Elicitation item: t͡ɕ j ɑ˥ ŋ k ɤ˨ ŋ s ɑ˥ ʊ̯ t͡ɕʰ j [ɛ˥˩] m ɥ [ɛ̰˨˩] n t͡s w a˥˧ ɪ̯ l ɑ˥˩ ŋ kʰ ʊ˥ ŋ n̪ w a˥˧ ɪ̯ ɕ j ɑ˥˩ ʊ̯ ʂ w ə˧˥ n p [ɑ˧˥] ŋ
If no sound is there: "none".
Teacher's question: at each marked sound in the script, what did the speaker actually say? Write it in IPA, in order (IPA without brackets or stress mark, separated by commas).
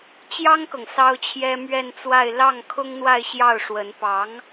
ɛ˥, ɛ˥˧, ɑ˧˥